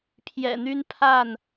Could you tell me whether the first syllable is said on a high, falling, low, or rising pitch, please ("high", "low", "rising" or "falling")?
low